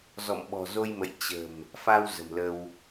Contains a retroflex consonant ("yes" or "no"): no